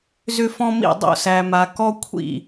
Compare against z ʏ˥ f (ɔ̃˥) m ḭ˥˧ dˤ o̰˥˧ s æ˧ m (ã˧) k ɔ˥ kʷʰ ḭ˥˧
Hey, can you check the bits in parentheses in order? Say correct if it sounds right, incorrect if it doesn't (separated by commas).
correct, incorrect